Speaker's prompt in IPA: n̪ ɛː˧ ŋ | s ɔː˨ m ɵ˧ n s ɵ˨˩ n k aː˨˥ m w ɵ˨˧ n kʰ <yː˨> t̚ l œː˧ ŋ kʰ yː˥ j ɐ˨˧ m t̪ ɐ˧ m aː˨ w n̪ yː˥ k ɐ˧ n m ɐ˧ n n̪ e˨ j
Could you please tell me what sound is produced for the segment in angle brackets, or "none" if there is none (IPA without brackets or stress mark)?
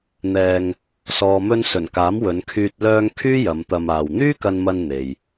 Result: yː˧